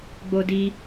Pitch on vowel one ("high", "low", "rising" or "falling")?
high